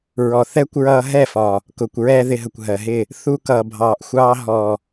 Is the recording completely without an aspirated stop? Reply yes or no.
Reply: yes